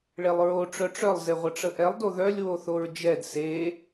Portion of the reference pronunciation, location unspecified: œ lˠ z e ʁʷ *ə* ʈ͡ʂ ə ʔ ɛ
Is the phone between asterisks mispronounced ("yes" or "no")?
no